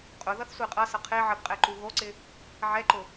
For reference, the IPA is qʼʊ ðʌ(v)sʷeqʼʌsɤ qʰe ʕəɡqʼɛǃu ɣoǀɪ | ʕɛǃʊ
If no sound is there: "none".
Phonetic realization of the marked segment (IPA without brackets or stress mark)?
θ